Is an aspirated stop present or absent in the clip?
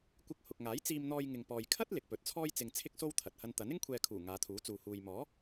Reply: present